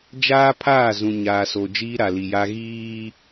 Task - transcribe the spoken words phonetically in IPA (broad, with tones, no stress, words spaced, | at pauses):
d͡ʒaː˦pʰaː˦˨zũ˨ ɲaː˨so˨ d͡ʒiː˦ɾa˨li˨ja˦ ɣiː˦